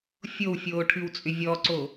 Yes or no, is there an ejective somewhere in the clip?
yes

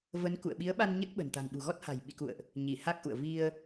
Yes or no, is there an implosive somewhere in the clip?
yes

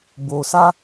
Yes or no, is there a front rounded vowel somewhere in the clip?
no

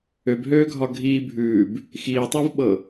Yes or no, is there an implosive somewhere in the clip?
yes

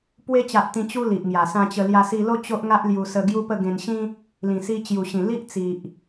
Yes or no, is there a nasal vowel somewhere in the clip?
yes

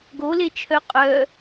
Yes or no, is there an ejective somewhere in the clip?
yes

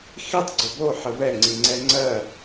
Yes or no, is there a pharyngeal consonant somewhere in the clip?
yes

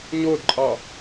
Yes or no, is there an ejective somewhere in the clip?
yes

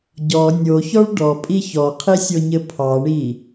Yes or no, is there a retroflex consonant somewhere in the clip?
yes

